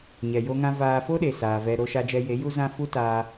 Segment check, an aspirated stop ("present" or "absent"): absent